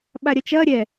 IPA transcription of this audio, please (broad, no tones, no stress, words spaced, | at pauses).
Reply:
ɓaɾʲɐt͡ʃɐ ɾʲɛ